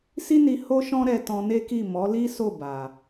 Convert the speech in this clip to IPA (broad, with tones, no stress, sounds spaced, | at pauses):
s i˦ n i˧ h o˦ ʃ ɔ̃˦ ɾ ɛ˧ t ɔ̃˧ n e˦ k i˦˨ m ɔ˨˦ l i˦ s o˦˨ b a˨